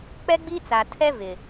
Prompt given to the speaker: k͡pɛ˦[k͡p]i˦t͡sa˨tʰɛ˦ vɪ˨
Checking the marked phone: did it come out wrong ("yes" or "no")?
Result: yes